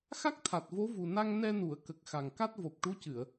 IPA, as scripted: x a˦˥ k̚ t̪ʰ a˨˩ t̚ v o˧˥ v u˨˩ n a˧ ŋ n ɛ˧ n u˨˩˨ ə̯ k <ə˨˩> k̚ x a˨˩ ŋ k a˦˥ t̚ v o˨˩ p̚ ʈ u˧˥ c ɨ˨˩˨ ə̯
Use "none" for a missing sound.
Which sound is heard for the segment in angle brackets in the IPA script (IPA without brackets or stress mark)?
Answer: ə˨˩